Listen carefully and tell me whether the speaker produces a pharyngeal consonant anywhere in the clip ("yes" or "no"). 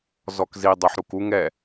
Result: yes